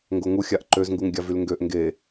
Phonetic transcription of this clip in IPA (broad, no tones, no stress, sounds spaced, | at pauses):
ŋ ɡ o ŋ u xʲ a ʔ ǃ ø z ŋ ɡ u ŋ ɡʲ a v y l ŋ ɡ ø ʔ ŋ ɡ e